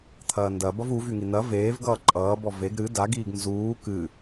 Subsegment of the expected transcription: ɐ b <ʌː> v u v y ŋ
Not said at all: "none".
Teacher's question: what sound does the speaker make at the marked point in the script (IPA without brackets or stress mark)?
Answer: ʌ